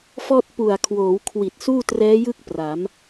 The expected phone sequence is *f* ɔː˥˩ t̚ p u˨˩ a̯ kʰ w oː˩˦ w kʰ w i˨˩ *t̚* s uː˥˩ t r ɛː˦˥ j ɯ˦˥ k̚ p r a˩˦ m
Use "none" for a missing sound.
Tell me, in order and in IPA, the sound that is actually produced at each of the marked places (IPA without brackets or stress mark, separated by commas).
f, t̚